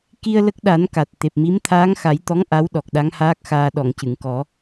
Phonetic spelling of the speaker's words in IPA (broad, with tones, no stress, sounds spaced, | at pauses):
k i˧ ə̯ l ə˦˥ k̚ ɗ a˨˩˦ n k a˨˩ t̚ t̪ e˨˩ p̚ m i˧˥ m t̪ʰ aː˧˥ ŋ x a˨˩˦ j t̪ ɔ˧˥ ŋ ʔ a˧˥ w ɗ ɔ˨˩ k̚ ɗ a˧˥ ŋ h aː˦˥ k̚ x aː˧ ɗ ɔ˨˩˨ ŋ c ɨ˨˩˨ ŋ k ɔ˨˩˦